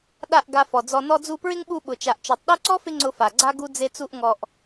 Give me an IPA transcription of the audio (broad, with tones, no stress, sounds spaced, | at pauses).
ɗ a˦˨ ʔ ɡ a˧ f ɔ˨ d͡z ɔ˧ n ɔ˧ d͡z u˧ p ɹ ɪ˦ ŋ ɓ u˧ ɓ ʊ˨ t͡ʃ a˨ ʔ t͡ʃ ɔ˨ tˤ ɗ u˦ ǀ ɔ˦ f ɪ˧ ŋ͡ǀ ʊ˧ f a˨ ɡ͡ǀ a˦ ɡ u˦ d͡z e˦ t͡s u˦ ʔ ŋ ɔ˧ ʔ